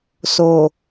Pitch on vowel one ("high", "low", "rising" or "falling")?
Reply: low